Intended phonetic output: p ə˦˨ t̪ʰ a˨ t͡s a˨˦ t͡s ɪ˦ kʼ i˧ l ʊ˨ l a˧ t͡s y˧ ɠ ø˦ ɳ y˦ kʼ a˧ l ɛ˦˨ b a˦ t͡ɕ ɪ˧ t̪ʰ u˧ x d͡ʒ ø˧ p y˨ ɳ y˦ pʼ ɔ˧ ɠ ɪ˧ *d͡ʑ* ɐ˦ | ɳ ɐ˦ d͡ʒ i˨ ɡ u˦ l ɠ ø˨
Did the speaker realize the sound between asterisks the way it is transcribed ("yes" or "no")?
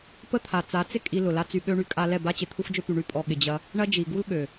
yes